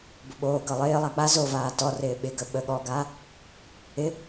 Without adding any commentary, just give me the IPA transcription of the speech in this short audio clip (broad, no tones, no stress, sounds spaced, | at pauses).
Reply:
b ʊ ɓ oː ɡ ɤ lˠ ɪː lˠ a k͡p a z o v aː t ɔ r ɪː ɓ ɪ ɡ ə ɓ ə ɠ ɔ ɡ aː | ɪ